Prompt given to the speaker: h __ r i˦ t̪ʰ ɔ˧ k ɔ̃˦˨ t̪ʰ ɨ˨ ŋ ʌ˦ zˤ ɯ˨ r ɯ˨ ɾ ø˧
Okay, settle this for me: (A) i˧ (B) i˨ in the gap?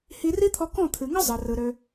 A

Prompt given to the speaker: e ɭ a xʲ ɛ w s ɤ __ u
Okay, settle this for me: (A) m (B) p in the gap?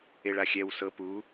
B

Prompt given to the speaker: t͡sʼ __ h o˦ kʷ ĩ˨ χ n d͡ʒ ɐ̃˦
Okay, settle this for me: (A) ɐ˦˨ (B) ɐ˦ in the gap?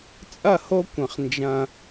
A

